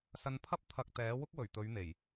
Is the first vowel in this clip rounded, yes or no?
no